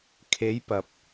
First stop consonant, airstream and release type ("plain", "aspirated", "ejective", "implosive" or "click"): aspirated